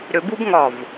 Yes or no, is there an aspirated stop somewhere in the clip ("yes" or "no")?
no